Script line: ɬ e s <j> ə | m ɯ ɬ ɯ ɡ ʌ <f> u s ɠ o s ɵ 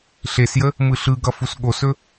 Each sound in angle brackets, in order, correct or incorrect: correct, correct

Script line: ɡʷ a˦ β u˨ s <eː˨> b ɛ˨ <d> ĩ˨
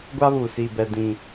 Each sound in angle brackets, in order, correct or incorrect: incorrect, correct

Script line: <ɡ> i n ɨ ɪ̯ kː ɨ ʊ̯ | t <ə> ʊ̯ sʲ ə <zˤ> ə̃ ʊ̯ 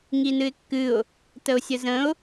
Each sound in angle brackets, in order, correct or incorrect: incorrect, correct, incorrect

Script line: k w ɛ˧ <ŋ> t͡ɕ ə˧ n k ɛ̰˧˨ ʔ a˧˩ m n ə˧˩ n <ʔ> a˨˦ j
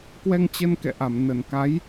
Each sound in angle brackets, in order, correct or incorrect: correct, incorrect

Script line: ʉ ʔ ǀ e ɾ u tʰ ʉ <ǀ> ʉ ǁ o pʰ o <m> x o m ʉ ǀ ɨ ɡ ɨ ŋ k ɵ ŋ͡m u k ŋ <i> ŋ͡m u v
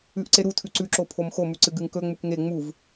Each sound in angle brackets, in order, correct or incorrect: correct, correct, incorrect

